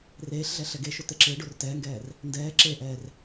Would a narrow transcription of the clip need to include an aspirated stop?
no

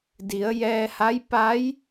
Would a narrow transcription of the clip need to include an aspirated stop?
no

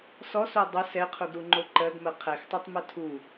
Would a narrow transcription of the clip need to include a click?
yes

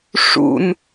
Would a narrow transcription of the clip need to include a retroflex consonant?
yes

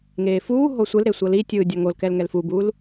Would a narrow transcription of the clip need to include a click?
no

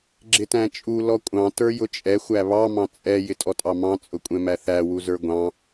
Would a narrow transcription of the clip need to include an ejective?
yes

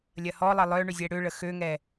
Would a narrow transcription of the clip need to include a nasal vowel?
no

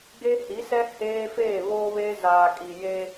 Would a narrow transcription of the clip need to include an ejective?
yes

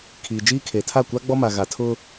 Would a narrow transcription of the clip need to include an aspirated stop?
yes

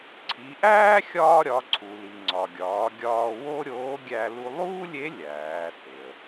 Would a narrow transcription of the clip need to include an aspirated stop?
yes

